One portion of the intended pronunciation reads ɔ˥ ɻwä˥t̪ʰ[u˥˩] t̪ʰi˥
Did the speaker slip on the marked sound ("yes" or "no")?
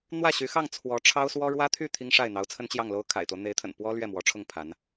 yes